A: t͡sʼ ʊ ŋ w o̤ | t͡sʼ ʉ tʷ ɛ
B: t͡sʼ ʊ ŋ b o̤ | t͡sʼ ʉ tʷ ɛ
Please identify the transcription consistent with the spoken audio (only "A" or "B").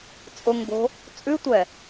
B